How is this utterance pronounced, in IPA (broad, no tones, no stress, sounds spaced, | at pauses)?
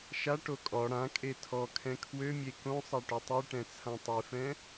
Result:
ʃ a ʈ o kʼ ɔ ɽ ã kʼ e tʰ ɔ kʰ ɛ̃ kʰ w ø mʲ e k õ sˤ a ʈ ø tˤ i ʈ ɛ̃ t͡sʰ ã tˤ i f ɛ̃